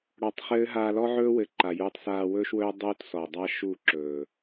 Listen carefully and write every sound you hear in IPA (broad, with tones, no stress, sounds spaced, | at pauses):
ɽ ɔ˧ tˤ χ ɘː˦ ɦ aː˧ l ɔ˦ ʕ ɵː˦ w ɘ˨˦ ǃ a˨ j uː˧ tˤ s aː˧ w ɵː˦ ʃ w ɵː˦ dˤ uː˦ t s ɔ˨ dˤ a˦ ʃ u˦˨ ǁ ɵː˨